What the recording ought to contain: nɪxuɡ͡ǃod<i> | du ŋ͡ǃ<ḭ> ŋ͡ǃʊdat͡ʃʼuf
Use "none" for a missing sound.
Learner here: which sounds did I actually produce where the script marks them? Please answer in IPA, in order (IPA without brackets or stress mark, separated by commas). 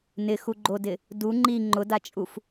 ɪ, i